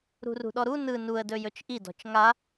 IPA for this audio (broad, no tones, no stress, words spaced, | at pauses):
ɾṳrṳɗɔɾu nɯ nuə̯dɵ jɵt͡ʃʔidɔ̤t͡ʃ ŋa